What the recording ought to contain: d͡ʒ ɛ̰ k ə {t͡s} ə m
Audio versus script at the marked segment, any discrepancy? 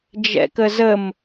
yes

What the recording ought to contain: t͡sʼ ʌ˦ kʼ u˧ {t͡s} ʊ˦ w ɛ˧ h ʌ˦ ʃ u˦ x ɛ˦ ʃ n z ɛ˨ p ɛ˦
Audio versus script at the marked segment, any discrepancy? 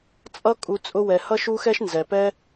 yes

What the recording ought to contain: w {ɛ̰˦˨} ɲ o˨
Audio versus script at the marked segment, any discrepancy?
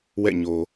no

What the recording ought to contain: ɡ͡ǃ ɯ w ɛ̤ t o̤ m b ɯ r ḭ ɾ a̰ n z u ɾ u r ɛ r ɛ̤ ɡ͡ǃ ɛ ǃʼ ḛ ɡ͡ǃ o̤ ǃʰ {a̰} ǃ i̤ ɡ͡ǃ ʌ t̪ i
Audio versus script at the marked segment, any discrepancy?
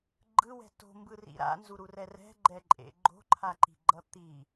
yes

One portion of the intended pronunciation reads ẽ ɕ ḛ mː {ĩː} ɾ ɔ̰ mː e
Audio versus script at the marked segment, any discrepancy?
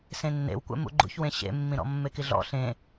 yes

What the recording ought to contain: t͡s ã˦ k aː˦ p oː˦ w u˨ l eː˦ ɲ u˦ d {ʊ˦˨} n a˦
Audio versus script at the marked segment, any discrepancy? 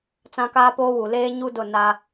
no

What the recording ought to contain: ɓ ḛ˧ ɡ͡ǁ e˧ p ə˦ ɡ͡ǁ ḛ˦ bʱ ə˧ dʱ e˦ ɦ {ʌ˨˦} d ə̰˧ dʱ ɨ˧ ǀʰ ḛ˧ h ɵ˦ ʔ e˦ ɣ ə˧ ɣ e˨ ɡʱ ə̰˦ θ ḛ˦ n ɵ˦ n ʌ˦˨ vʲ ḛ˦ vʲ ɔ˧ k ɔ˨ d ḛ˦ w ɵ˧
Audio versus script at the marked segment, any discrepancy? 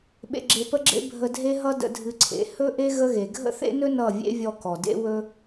yes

